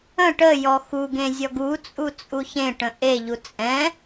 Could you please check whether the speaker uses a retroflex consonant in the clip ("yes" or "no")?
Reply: yes